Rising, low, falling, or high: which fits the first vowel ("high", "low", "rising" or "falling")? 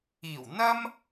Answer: low